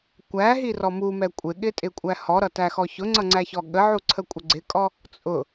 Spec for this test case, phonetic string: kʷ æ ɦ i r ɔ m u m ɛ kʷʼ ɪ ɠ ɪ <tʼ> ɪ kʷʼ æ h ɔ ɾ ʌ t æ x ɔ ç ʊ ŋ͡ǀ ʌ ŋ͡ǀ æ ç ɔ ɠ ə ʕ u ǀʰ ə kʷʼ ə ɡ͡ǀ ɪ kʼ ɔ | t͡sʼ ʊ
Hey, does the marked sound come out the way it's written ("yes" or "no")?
yes